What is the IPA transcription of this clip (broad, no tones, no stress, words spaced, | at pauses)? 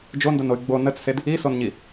d͡ʒondənoy̯ ɡ͡bo nət͡ssed | isonɲi